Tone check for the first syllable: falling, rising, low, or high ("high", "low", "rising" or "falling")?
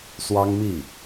high